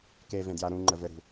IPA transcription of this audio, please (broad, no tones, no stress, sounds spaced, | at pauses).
k e v ẽ d j a ɾ ũ ŋ͡ǃ ə v ɘ ɾ ṳ